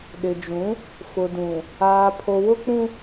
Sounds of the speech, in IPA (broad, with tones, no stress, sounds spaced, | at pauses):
ɗ ɪ˨ d͡ʒ ũ˨˦ | f ʊ˨ d ũ˨ | aː˨ pʰ o˨ w ʊ˦ k͡p ũ˦